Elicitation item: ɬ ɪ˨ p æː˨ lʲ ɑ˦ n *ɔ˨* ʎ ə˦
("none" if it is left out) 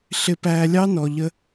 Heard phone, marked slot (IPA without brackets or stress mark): ɔ˨